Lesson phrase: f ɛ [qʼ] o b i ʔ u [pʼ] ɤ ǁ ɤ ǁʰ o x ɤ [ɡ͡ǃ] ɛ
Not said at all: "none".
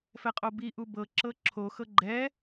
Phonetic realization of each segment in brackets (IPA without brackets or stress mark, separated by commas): qʼ, b, ɡ͡ǃ